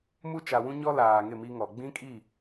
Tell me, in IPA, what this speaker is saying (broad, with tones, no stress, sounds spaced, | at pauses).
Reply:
m u˦ t͡ʃ a˨ w ũ˦ ɲ ɔ˦ l aː˨ ŋ ɪ˦˨ m i˦ ŋ ɔ˨ ɡ͡b ĩ˦ kʼ i˦˨